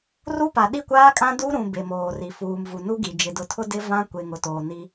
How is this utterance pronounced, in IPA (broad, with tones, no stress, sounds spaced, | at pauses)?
r u˦ p a˨ ɗ i˦˨ kʷ aː˦ kʼ ã˦ d u˦ ɾ ũ˨ b e˨ m oː˨ r i˨ f uː˨ m v u˨ n u˦ ɡ i˨ d͡ʒ ɪ˨ d ʊ˨ tʰ ʊ˦ d ɪ˦ v ã˦ kʷ e˨ ŋ ʊ˨ t oː˨ n i˦